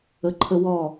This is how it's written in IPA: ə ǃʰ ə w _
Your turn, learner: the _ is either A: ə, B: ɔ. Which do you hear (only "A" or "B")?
B